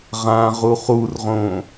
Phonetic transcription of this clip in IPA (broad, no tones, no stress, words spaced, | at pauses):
ʁãʁu χurʁõ